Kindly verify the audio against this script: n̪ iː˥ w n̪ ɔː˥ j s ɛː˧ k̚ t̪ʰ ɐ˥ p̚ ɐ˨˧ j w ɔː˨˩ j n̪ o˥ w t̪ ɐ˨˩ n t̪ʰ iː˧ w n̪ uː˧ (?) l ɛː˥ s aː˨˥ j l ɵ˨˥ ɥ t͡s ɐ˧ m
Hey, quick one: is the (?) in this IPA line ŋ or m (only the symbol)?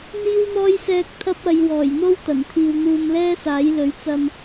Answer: m